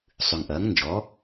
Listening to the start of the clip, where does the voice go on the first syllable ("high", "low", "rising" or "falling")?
low